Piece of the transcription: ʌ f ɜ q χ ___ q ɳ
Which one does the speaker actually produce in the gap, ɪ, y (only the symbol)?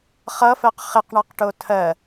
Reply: ɪ